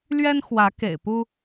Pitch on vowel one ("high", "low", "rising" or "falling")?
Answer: high